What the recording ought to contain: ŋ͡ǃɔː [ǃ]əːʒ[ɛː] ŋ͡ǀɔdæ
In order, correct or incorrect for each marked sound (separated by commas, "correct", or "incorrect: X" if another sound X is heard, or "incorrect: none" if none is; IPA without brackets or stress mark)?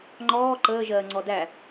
correct, incorrect: ɜː